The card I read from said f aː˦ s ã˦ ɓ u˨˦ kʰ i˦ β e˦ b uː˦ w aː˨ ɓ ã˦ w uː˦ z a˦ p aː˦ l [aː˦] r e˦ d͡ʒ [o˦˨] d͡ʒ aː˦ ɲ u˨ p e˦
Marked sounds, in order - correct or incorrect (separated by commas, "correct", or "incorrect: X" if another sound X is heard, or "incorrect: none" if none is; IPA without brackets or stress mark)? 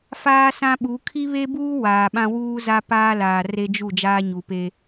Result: incorrect: aː˨, incorrect: u˦˨